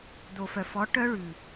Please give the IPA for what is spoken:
d̪ o˨ f œ˨ f ɔ˨˦ ʈ œ˧ ɭ ʉ˨

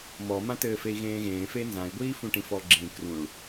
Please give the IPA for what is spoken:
m ɔ m ã t ɘː f e i̯ ɣ ẽː ɣ ẽː f e n z ã i̯ ɡʷ iː f ũ ʈ ĩ f ɔ ɡ͡ǁ ĩ k r ũ ɭ

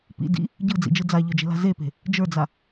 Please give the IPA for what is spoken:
p ḭ d ḭ | ɟ ɯ d͡z ḭ d͡ʒ ɯ d͡z a ʎ ə˞ d͡ʒ e̤ l a̤ z e p e̤ | d͡ʒ ə˞ d͡z a

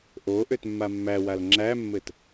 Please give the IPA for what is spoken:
ʔ o ʔ ø t mː a mː æ w a l ŋ͡ǁ æ mː ɘ t

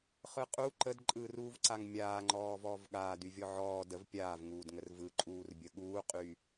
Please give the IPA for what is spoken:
χ ɯ qʼ u ǃ ə d ǃʼ ɯː r uː v ǀ a ŋ mʲ aː ŋ͡ǃ ɔː v ɔː v ɠ aː d y vʲ ɔ ʕ ɔː d ə v pʲ aː v ŋ uː d ŋ ə r v ɯ ǃʼ uː r bʲ ə ɠ uː qʼ y

